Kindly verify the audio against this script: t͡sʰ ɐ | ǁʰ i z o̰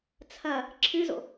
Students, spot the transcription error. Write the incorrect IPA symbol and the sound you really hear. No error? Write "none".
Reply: i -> ɨ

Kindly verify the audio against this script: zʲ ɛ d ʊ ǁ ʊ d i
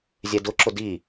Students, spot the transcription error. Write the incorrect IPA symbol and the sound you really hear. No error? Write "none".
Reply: none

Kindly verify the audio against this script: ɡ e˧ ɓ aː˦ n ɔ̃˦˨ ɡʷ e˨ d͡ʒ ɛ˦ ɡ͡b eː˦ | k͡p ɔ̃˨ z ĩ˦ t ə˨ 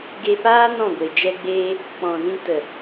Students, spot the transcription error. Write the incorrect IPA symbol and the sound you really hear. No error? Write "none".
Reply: ɓ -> p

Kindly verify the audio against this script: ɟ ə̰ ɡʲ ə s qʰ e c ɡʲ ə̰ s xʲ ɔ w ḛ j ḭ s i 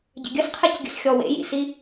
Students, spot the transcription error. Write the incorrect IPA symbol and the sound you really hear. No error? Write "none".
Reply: none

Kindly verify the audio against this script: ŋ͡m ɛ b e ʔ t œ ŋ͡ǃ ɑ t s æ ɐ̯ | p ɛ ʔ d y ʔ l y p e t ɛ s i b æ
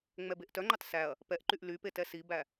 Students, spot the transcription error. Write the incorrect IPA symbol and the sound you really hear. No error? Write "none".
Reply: d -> ǃ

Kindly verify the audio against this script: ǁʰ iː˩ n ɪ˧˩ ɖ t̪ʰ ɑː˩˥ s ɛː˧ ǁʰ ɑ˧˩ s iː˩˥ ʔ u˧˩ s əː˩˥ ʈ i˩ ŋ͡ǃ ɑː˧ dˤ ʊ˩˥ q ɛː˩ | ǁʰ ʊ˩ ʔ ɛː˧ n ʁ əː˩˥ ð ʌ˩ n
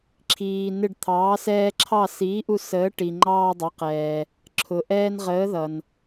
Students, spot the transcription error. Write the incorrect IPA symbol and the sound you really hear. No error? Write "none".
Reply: none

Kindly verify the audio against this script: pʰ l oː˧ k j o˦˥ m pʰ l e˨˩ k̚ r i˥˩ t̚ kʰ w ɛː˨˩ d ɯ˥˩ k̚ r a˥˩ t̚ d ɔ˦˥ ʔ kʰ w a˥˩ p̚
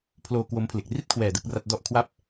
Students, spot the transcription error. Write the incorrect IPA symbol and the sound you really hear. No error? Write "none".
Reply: j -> w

